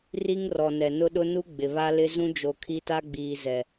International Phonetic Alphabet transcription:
r i˦ ŋ r ɔ˨ n ɛ˨ n ʊ˦ ɗ ʊ˦ n u˦ ɡ͡b ɪ˨ β a˦ l ɪ˦ z ũ˦ d͡ʒ o˨ kʰ i˦ t a˦ ɡ͡b iː˨ z ɛ˨

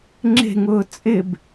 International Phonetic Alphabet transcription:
ŋ͡ǁ e̤ ŋ ʊː t͡sʼ ɪ b

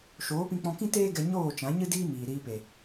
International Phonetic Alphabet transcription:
ʃ oː˨˦ p ĩ˧ k͡p ɔ̃˧ k ĩ˦ t eː˦ ɡ ɛ˧ ɲ oː˦˨ t͡ʃ ã˨˦ ɲ ɨ˦ d iː˦ m iː˨ ɾ iː˧ p e˨

